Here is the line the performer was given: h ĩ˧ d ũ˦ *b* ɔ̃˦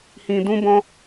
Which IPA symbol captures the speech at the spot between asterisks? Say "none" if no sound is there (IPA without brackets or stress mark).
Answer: b